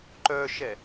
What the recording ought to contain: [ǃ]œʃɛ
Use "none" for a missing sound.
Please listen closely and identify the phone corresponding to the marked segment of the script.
ǃ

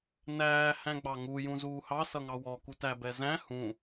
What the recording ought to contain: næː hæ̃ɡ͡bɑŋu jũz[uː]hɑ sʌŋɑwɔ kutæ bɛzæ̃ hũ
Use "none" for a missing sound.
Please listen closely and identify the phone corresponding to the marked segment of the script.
uː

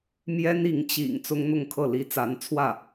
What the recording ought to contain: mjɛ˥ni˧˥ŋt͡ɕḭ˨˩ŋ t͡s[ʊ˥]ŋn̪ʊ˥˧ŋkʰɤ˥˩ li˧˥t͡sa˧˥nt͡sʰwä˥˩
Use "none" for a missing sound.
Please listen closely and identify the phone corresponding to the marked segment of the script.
ʊ˥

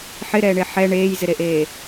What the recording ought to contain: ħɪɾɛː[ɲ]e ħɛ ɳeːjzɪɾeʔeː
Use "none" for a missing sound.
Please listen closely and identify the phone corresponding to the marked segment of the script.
ɳ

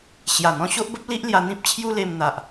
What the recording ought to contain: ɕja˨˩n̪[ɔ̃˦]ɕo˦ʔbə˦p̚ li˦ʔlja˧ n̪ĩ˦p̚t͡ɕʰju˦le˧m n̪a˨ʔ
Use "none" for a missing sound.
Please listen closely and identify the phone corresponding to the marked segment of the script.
ɔ̃˧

